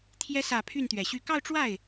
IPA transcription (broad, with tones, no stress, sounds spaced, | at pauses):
t̪ʰ j ɛ˧˥ s ä˨˩ pʰ y˥˩ n t̪ ɥ ɛ˨˩ ɕ y˥˧ k ɑ˥˧ ʊ̯ ʈ͡ʂ w a˥˩ ɪ̯